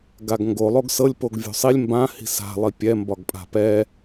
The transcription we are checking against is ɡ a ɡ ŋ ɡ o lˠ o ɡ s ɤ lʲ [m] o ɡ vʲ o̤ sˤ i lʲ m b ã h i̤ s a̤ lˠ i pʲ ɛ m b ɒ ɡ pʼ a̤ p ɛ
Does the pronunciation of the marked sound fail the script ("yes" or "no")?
yes